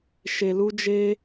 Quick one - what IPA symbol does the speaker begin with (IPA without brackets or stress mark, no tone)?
ʃ